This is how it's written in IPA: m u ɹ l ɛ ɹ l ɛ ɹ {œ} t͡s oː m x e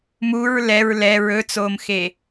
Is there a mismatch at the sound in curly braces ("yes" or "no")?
yes